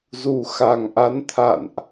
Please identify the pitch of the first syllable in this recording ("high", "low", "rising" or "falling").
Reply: low